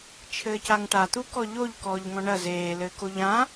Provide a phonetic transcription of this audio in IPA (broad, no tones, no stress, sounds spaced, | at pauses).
t͡ʃʰ ɘː c a ŋ ʈ a t̪ u k ɔ ʎ o ʎ k ɔː ʎ ŋ ɔ̃ ɳ ɐ z eː l ɘː k o ʎ ã